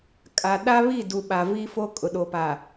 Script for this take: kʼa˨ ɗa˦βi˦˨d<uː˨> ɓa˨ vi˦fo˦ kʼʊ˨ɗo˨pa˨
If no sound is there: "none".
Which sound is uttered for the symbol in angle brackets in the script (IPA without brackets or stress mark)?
u˨